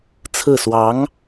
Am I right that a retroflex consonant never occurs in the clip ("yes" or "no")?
yes